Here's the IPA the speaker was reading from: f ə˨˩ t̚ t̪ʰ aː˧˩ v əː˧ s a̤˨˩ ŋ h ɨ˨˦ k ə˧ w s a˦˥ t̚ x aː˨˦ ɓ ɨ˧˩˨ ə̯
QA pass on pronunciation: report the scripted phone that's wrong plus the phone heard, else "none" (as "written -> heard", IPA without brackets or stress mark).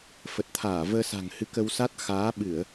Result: none